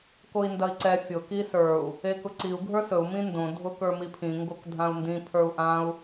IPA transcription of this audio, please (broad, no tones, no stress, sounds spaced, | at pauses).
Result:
k o i̯ n d ɐ i̯ ǀ ɛ fʲ ʊ k i s ə˞ u̯ | e k ʊ ǀ i u̯ ɡʱ ə˞ s ɵ u̯ m ĩ n d õ dʱ ʊ k ə˞ m i pʰ ĩ ŋ ɡ o k dʱ ã u̯ n d ĩ pʰ ə˞ u̯ ʔ ã u̯